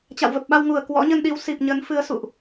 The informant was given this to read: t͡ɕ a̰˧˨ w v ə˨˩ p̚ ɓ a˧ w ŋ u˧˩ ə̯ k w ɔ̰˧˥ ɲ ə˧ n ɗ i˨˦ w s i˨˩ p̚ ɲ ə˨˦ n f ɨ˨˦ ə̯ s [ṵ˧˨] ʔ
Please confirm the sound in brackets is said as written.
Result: yes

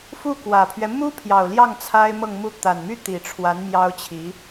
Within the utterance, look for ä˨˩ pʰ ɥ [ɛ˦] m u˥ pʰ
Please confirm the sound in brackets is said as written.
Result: yes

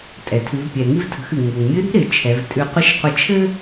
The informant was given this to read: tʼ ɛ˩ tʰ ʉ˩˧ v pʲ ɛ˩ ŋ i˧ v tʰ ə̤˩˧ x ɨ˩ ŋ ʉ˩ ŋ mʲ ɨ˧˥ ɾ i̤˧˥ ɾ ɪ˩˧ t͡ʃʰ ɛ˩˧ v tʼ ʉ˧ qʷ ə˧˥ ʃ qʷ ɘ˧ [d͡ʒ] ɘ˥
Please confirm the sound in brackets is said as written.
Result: no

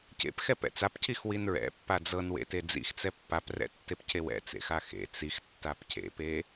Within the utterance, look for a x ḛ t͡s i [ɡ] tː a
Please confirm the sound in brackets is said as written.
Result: no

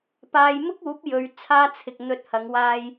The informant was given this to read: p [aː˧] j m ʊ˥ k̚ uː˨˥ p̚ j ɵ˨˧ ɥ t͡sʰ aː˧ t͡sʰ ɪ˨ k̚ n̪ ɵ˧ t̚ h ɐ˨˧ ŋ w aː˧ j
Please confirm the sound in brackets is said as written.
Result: yes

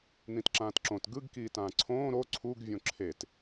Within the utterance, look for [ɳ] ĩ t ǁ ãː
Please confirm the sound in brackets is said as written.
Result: no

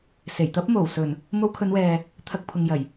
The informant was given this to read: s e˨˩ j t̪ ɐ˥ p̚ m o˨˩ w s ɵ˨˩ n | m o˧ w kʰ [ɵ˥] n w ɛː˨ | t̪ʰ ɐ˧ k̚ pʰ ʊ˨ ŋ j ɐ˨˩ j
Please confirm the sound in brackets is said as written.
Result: no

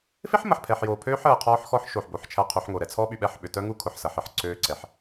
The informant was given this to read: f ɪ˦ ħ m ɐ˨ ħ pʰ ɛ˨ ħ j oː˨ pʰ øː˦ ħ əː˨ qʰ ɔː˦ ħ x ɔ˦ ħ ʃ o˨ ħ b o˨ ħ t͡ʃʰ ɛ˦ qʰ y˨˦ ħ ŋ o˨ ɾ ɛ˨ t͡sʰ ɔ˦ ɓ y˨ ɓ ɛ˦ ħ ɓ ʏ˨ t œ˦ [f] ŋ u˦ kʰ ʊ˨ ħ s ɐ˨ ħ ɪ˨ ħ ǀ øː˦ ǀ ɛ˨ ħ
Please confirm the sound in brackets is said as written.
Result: no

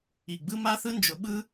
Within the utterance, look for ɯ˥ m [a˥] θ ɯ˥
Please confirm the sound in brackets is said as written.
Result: yes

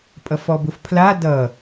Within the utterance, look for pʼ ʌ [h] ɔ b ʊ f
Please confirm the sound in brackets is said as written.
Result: no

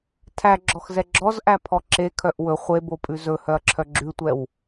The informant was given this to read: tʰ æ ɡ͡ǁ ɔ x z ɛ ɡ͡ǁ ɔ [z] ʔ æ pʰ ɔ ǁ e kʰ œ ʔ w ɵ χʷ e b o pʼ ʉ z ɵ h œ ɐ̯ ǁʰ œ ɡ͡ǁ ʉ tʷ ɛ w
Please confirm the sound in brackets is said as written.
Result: yes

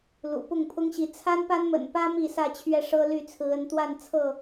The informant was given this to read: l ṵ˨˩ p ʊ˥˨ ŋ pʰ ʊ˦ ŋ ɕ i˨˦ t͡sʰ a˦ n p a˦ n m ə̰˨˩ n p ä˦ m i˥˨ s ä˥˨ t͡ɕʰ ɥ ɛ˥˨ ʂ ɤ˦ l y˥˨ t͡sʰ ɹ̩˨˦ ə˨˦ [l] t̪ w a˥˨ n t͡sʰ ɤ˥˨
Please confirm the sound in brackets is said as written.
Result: no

